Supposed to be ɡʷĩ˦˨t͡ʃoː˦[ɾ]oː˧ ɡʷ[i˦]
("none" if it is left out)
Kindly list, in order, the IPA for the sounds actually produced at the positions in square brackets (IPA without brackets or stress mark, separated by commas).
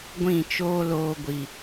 l, i˨